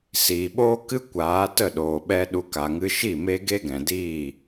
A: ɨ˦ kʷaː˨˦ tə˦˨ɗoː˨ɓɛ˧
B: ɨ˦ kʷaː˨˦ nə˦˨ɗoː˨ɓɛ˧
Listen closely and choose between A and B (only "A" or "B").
A